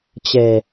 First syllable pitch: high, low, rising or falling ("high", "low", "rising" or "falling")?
low